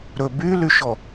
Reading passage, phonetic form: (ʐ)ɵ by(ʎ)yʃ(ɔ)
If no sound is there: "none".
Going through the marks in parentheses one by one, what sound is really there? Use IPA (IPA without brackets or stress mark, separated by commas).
ɾ, l, ɔ